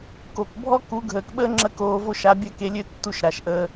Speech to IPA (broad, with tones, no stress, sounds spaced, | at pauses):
k o˨ k bʱ ɔ˦ k u˨˦ ɡʱ əː˨ k ɓ əː˦ ŋ͡ǁ ə˦ k oː˧ v o˦ ʃ a˨˦ bʲ ɜ˦˨ k e˧ lʲ ø˦ tː u˧ ʃ ɾ a˨ ʃ ʔ əː˧